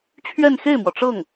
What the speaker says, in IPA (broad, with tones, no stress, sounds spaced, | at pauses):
t͡ɕʰ ɥ ɛ˥˧ n x e˥˩ ɪ̯ m w ɔ˩ ʈ͡ʂ ɤ˥˩ ŋ